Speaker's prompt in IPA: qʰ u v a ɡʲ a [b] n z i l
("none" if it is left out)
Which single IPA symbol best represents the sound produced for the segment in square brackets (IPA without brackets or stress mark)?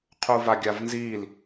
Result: v